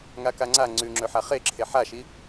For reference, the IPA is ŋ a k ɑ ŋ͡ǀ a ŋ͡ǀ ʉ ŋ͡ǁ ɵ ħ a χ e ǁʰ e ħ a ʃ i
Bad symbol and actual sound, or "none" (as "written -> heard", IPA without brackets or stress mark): ɑ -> a